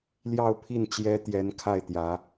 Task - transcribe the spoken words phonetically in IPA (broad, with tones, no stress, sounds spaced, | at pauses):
l j ɑ˥˧ ʊ̯ pʰ i˥˩ n t͡ɕ j ɛ˥ t̪ j ɛ˧˥ n kʰ a˥˩ ɪ̯ t̪ j ä˧˥